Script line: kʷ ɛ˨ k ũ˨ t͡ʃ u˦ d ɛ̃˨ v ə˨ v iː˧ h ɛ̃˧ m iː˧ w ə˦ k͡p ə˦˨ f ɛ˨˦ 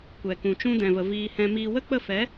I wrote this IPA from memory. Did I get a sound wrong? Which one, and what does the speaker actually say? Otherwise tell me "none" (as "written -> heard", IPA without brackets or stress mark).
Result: u˦ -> ũ˦